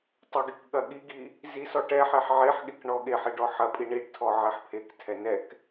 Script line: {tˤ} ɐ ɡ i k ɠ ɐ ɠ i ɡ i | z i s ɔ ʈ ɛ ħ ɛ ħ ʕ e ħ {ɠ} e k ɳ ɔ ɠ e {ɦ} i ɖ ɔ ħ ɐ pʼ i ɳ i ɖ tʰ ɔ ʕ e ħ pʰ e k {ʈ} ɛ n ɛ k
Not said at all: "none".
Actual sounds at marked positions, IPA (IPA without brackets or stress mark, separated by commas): tˤ, ɠ, ħ, tʰ